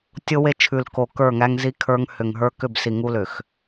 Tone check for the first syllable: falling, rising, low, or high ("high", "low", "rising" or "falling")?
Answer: high